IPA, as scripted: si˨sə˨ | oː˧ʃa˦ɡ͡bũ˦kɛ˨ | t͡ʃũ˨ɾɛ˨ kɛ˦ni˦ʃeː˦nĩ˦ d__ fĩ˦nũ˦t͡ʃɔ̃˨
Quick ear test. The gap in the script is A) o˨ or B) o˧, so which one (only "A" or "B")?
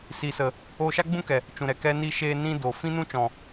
A